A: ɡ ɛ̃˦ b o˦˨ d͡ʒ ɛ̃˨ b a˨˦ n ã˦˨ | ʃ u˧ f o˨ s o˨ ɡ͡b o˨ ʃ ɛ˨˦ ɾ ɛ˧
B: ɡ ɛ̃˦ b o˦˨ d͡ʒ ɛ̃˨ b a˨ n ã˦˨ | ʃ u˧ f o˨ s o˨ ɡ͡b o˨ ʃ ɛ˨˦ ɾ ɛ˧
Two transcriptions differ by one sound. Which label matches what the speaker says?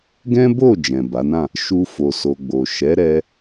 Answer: A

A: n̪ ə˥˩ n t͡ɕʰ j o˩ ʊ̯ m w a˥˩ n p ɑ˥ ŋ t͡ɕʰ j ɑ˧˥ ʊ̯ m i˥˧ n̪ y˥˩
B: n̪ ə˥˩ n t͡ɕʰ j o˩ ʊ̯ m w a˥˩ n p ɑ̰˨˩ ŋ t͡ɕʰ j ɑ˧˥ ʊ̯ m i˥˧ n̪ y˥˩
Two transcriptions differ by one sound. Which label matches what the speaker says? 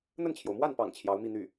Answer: B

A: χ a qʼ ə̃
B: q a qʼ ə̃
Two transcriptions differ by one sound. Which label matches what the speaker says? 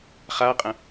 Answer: A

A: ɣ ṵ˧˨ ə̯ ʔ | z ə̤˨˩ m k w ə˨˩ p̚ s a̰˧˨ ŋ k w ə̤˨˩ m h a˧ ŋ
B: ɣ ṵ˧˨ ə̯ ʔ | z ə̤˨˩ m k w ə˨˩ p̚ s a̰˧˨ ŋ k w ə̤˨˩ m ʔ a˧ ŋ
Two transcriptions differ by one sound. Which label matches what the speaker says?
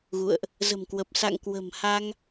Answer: A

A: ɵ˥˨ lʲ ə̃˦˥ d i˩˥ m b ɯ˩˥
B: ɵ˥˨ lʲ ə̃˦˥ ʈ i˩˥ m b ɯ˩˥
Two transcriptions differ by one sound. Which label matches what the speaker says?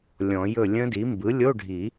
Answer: A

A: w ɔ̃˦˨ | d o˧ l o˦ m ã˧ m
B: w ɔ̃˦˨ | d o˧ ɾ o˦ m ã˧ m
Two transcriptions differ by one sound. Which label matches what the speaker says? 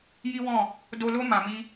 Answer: A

